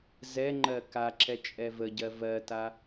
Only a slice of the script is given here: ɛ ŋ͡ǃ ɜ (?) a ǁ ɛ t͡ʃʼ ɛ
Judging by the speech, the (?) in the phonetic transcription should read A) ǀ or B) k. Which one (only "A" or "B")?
B